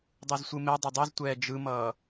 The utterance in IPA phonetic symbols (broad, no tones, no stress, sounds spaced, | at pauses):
dˤ u z sʷ ɯ m e dˤ ʌ dˤ i z tʷ ɛː d͡ʒ ɯ m ʌː